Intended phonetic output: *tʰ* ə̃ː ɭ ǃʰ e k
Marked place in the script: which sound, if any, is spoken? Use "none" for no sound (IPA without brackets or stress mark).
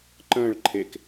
ǃ